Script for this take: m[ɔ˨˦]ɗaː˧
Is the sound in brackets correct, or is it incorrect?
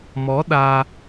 correct